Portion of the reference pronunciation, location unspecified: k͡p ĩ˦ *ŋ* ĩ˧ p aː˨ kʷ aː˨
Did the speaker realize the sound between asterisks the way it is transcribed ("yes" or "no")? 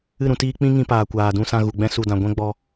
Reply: yes